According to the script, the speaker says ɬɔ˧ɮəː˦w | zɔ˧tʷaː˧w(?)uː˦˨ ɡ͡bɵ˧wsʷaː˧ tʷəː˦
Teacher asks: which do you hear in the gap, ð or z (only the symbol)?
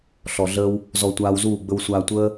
z